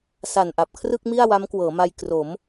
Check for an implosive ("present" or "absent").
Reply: absent